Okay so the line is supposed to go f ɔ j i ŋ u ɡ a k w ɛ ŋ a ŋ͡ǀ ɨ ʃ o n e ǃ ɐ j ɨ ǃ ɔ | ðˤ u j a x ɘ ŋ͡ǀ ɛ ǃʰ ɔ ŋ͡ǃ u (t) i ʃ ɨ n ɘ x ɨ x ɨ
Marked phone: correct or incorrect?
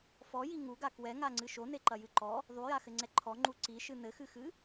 incorrect